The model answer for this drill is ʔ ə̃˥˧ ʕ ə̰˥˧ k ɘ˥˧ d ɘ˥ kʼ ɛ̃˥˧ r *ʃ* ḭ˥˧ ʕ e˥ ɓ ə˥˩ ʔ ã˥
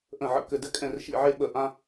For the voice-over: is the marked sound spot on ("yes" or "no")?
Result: yes